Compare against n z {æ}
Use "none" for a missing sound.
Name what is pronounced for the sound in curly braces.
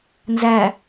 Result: æ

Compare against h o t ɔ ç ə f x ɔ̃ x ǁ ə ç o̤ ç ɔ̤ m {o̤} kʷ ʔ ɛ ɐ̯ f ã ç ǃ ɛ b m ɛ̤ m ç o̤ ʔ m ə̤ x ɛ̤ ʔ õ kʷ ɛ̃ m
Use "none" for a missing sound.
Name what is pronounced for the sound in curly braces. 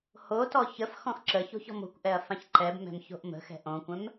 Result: o̤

